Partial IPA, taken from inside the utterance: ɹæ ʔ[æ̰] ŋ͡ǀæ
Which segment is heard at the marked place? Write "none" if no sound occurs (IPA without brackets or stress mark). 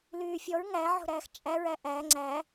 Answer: æ